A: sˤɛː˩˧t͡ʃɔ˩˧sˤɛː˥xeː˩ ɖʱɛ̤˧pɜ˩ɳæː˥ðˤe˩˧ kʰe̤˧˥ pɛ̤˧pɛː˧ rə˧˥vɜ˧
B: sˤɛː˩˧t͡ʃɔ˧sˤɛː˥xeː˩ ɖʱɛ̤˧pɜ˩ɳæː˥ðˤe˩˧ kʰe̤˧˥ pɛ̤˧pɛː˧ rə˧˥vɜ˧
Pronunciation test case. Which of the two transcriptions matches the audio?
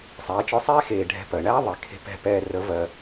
B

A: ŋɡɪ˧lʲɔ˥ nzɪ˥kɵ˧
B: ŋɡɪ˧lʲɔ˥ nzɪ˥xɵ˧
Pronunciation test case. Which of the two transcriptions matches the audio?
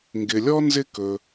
A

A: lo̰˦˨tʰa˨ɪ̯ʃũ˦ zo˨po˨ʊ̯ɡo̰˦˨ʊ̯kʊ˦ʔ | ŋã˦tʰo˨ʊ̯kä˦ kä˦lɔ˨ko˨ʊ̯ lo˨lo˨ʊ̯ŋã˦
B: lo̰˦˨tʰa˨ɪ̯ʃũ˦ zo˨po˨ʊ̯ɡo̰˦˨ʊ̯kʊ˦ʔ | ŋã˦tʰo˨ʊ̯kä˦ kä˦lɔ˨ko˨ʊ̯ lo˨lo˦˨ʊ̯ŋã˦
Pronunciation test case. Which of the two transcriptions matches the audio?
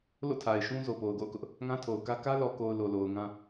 A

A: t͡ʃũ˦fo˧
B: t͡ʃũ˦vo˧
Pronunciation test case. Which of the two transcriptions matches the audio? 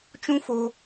A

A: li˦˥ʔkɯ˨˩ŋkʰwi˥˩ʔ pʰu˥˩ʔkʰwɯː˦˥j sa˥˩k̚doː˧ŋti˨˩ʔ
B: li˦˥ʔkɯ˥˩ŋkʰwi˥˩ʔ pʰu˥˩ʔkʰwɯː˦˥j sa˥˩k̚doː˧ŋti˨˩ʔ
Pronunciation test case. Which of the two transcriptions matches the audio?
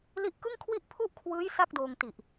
B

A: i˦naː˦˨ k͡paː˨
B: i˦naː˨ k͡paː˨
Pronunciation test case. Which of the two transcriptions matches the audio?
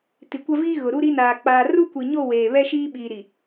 B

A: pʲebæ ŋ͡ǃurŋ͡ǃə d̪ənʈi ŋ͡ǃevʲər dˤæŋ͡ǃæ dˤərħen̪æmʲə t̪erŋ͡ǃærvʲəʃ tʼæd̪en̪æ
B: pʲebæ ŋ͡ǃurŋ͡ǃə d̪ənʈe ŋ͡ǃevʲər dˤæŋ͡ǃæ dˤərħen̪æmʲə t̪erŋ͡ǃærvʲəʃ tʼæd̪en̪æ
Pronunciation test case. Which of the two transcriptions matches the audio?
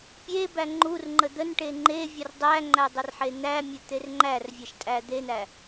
B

